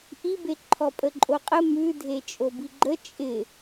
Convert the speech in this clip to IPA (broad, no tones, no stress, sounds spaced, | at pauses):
ʔ i b e ǃʰ ɔ pʼ ə ǃʼ o qʼ ə m ʉ dʱ e t͡ʃʼ o b i ɡ͡ǃ ə t͡ʃʼ ɪ